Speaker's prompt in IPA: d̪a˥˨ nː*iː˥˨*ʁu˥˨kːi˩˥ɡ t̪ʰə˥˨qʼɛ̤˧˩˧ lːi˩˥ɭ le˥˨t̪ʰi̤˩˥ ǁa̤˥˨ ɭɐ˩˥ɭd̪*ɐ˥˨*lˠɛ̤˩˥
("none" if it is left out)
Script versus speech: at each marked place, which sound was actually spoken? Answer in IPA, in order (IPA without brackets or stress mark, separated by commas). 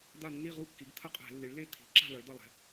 i˥˨, ɐ˥˨